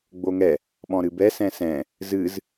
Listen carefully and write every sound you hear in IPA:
ɡ͡b o ŋ ɛ | ɓ ɔ̃ ɾ ɨ b ɛ s ɛ̃ s ɛ̃ | z ɨ z

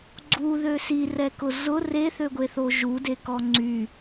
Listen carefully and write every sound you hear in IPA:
ɡ͡ǀ u ð ø s i r ɛ k ʊ z ʊ r e θ ø ɡʷ e θ o ʒ u d e k ɔ ŋ͡ǀ y

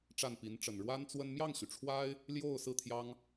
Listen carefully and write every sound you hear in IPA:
ʈ͡ʂ a˥˩ n p i˧˥ n ʈ͡ʂ ə˨˩ n ɻ w a˥ n t͡s w ə˥ n m j ɑ˥˩ ŋ ɕ y˩ ʈ͡ʂʰ w a˥ ɪ̯ | l j o˥˧ ʊ̯ s ɹ̩˥˩ t̪ʰ j ɑ˥ ŋ

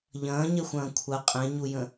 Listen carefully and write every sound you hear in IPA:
ʎ ɐ̃ː ɲ ɛ xʷ ɐ̃ː kʷʰ ɐ qʼ ɛ̃ ɲ u j ə̃

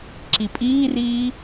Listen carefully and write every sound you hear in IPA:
ǁ i pʼ iː r iː

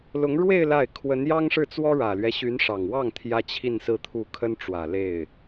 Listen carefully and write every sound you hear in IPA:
l ʊ˧˥ ŋ ɻ w e˥˧ ɪ̯ l a˥˩ ɪ̯ kʰ w ə˧˥ n j ɑ˥ ŋ ʂ ɻ̩˥˩ t͡s w ɔ˥ ɻ ä˨˩ l ɥ ɛ˦ ɕ y˧˥ n ʂ ɑ˨˩ ŋ w ɑ˥˩ ŋ t̪ʰ j ä˥ t͡ɕʰ i˥˧ n s ɹ̩˥˧ t̪ʰ u˥˩ kʰ ə˥ n ʈ͡ʂ w ä˨˩ l e˥˩ ɪ̯

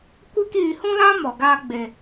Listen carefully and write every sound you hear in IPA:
kʷ ɛ˧ k iː˨ h ũ˦ l ã˦ m ɔ˨ ɡ aː˧ ɡ͡b e˨

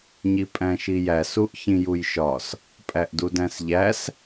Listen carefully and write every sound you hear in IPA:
ɲ i pʼ æ̃ ʃ i j æ s u ʔ ç ĩ j u j ʃ ɒ s | pʼ æ ʔ d u d æ̃ s ʎ æ s

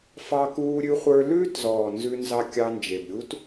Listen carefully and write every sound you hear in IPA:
f ɑ˦ k uː˦ ɾʲ ʉ˦ χʷ ə˞˦ l ʉː˦ t z ɔː˨ n z ʉ˦ n z ɑ˦ kʲ ɑ˦ n d͡ʒ e˨ b ɾʲ u˦ t

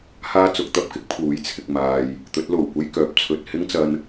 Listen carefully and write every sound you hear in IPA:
h aː˥ t͡s ʊ˨˥ k̚ t̪ ɐ˥ p̚ k ɪ˥ k̚ pʰ uː˨˥ j t͡sʰ ɪ˨ k̚ m aː˨ j | t̪ ɵ˨˥ t̚ l o˨˩ w kʷ ɐ˥ j k œː˨˥ p̚ t͡sʰ ɵ˧ t̚ h ɪ˥ ŋ t͡s ɐ˧ n

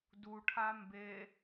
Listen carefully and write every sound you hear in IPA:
d u ʈʰ a m b e

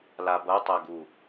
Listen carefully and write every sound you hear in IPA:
l a b ɐ tˤ a ɡ u

